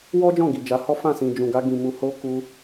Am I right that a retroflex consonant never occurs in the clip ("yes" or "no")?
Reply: yes